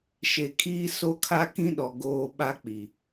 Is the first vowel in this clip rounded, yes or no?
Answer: no